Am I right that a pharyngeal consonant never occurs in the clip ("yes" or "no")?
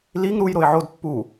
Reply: no